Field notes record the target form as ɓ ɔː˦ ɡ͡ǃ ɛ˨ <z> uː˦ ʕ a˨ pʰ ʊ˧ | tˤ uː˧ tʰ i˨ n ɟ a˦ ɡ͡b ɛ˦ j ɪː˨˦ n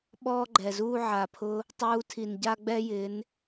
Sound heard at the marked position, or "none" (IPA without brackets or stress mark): z